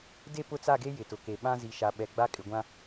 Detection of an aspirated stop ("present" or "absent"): absent